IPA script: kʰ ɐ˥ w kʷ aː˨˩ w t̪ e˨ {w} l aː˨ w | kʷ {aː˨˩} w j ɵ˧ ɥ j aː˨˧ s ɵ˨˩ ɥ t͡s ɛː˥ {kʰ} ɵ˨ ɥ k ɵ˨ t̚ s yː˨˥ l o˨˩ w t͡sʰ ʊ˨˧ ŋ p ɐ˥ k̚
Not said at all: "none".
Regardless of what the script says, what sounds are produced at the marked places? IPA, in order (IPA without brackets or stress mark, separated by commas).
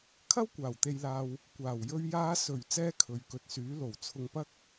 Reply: j, aː˨˩, kʰ